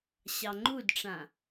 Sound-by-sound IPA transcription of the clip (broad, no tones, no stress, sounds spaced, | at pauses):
ɕ ɑ ŋ͡ǃ u d ʈ͡ʂ ã